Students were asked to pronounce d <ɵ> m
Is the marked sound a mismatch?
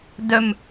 no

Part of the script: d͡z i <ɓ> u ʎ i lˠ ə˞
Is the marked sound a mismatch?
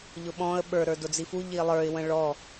yes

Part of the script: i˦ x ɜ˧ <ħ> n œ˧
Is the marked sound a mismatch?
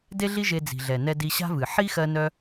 yes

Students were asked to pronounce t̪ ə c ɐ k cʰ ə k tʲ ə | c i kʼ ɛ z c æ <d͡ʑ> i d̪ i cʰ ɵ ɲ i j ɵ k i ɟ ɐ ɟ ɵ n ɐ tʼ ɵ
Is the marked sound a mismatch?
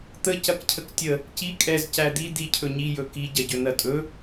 yes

